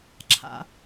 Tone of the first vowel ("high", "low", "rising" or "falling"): low